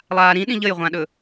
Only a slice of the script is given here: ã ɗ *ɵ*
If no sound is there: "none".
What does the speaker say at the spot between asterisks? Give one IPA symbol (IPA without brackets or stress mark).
ɵ